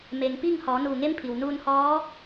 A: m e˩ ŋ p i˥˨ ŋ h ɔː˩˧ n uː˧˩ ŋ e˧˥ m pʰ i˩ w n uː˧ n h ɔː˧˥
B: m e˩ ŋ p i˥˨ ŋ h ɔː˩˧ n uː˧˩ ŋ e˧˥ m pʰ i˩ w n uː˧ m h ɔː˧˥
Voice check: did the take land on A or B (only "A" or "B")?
A